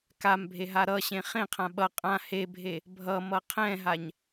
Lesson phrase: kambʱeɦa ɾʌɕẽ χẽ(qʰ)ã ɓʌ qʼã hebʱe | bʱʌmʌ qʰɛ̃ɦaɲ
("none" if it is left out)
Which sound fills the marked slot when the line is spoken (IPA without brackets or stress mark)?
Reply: qʰ